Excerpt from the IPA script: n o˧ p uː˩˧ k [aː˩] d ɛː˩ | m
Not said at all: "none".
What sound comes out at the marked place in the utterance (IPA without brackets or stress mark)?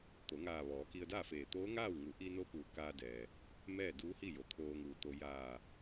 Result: aː˧